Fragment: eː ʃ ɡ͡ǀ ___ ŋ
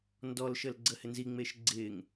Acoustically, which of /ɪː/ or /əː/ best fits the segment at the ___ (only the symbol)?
ɪː